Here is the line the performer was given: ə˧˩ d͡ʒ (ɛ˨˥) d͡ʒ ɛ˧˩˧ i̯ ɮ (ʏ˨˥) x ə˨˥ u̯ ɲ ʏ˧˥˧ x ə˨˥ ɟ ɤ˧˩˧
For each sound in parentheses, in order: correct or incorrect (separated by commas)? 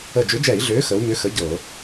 incorrect, incorrect